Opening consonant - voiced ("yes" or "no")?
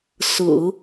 no